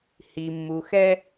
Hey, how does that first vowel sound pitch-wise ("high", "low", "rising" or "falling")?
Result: low